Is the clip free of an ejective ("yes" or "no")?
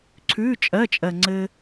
no